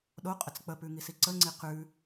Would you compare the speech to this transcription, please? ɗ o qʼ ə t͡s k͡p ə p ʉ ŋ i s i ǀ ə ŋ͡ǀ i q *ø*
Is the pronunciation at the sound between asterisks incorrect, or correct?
incorrect: ʉ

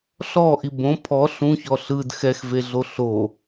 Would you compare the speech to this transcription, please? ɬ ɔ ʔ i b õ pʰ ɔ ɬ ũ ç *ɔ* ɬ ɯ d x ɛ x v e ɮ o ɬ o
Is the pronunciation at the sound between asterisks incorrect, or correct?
correct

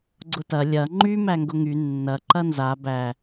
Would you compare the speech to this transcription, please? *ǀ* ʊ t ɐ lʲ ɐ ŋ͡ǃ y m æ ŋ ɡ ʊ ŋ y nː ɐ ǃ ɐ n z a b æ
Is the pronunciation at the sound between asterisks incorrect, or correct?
incorrect: ɡ͡ǀ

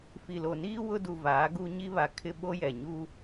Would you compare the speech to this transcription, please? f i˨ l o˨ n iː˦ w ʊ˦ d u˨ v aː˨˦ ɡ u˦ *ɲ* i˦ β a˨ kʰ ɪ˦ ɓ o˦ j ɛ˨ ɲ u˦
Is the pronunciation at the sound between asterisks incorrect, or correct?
correct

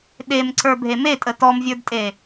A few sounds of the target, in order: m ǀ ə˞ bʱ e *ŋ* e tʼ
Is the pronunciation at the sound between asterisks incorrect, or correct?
incorrect: m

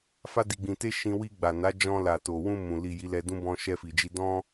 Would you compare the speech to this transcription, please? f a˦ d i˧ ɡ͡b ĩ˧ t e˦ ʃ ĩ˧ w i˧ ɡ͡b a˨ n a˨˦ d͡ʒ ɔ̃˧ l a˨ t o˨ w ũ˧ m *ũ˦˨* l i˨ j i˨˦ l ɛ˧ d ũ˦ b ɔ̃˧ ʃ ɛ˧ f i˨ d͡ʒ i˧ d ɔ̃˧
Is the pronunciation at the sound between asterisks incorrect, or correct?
incorrect: ũ˨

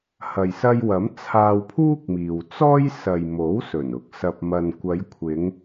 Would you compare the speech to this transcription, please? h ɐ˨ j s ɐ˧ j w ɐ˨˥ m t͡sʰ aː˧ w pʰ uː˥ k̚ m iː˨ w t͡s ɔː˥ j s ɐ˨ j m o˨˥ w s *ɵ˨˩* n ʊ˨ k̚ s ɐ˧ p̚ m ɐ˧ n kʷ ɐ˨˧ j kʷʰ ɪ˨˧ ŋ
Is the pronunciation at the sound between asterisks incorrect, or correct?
correct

